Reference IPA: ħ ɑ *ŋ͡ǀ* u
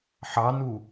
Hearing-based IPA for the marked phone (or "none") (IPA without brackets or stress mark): n